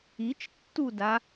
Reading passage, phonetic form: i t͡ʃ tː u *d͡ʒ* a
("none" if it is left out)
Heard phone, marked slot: d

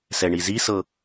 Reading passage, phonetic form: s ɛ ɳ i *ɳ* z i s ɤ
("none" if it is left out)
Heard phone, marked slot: none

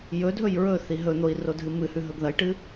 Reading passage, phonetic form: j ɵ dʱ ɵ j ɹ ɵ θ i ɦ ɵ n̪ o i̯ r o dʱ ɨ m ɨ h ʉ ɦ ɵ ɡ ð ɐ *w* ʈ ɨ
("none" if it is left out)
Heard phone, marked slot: j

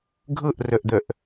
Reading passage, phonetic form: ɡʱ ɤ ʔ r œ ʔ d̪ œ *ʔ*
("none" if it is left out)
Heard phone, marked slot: ʔ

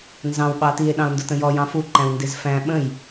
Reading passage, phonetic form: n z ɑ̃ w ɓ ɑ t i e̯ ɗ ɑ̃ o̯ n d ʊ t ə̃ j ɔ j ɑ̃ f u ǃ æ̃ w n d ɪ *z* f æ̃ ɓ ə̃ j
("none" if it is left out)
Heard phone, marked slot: z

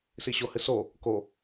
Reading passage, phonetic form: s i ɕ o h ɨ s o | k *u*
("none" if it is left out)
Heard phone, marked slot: o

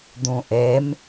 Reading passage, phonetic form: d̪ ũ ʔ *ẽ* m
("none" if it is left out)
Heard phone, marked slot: e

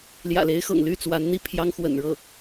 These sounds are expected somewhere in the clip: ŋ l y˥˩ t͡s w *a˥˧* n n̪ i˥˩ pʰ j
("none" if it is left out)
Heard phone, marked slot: a˧˥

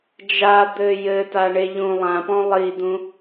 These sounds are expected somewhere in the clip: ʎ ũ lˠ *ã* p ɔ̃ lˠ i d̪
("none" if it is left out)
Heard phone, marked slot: ã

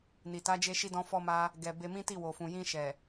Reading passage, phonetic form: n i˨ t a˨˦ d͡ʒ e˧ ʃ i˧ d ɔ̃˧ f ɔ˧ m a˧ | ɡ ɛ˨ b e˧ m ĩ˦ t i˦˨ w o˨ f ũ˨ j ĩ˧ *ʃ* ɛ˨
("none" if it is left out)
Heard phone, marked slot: ʃ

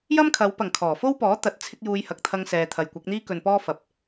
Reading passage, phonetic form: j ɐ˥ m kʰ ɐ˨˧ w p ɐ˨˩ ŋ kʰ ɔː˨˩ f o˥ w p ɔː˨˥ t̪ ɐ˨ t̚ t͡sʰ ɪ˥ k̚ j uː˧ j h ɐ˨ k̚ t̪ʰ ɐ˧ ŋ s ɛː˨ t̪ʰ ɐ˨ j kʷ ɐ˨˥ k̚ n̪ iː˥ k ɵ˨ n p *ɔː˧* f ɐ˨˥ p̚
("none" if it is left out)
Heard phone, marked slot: ɔː˥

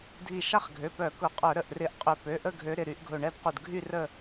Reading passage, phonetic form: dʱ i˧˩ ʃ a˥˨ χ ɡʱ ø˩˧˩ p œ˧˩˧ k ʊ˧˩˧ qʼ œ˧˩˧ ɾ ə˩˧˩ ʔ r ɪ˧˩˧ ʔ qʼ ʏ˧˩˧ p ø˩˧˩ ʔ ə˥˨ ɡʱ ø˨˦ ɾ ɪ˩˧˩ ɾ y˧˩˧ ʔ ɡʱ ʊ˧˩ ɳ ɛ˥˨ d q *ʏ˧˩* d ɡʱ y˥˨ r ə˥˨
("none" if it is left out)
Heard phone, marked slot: u˧˩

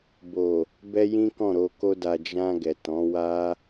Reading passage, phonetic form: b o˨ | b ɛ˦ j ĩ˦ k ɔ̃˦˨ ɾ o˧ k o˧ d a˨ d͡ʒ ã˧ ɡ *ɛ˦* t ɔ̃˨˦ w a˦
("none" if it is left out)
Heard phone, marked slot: ɛ˨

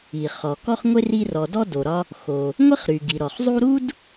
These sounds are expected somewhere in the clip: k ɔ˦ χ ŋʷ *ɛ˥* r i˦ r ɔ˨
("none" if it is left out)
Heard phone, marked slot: e˥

